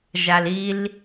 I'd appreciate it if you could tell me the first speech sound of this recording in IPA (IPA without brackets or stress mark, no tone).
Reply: ʒ